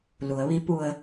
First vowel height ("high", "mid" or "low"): high